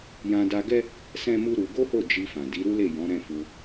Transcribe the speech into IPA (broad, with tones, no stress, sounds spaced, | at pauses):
j ã˧ d a˧ ɡ ɛ˦ | s ɛ̃˦ m u˦ ɾ u˧ ɡ o˦ h o˦˨ d͡ʒ i˧ f ã˨ d i˨˦ ɾ u˦ l e˦˨ j ɔ̃˨˦ ɾ ɛ̃˦˨ f u˧